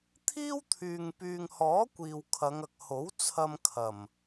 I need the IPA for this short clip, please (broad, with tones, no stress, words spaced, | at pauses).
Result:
t̪ʰiː˥wt̪ʰyː˨ŋ pyː˨ŋhɔː˨˥ kʷiː˨wkʰɐ˨˧ŋɐ˨k̚ ho˨˥w t͡sʰɐ˧mkʰɐ˨˩m